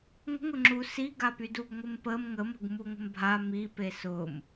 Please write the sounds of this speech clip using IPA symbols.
ŋʷ ə̤ ŋ ʊ ŋ͡ǁ u s i ɡ a p y d u ɡ ŋʷ ɪ m p ə m ŋ ə m ə̤ ɡ m u ŋʷ ə̤ m bʱ a m i p e s ʊ m

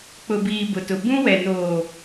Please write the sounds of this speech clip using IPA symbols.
k͡p ʊ˨ b iː˨ b ʊ˨ t ʊ˨ b ũ˦ w ɛ˨ n oː˨

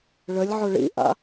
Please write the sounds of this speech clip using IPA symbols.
ɭ ə lʲ ʕ ʊ ɭ ḭ ʔ a̰

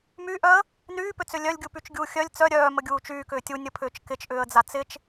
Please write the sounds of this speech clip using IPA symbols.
m y ʔ œ ə̯ | n yː p ʏ t͡s ʏ lʲ œ lʲ ɡʲ u p y t͡ʃ ɡʲ uː xʲ œ lʲ t͡s œ ɾʲ œː m ə ɡʲ uː t͡ʃ yː k ʏː tʲ u nʲ ə pʰ ʏː t͡ʃ k ɪ t͡ʃ ʔ ʏː ə̯ d͡z a t͡s ɪ t͡ʃ

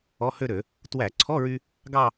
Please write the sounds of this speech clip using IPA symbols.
ɔ˧˥˧ h ø˥˧ ɾ ø˧˩˧ | t w æ˧˩˧ ǀʰ ɔ˧˥˧ ɹ y˧ | ɡ ɑ˥˧

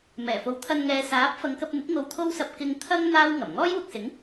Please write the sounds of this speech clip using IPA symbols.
m ɛː˨˩ f o˨ w t̪ʰ ɐ˧ n ŋ ɛː˨˧ s aː˨˥ p̚ f ɐ˨˧ ŋ k ɐ˧ p̚ n̪ ɪ˨˥ k̚ ŋ o˧ w t̪ʰ o˥ w s ɐ˧ p̚ k ɪ˧ ŋ t̪ʰ ɐ˥ ŋ n̪ aː˥ w ŋ ɐ˨˩ m ŋ ɔː˥ j w ʊ˨ k̚ s ɪ˨˥ ŋ

